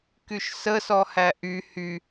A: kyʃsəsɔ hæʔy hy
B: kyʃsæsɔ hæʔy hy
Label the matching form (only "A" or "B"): A